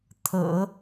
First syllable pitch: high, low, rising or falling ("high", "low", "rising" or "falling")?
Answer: low